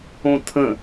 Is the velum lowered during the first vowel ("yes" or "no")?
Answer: yes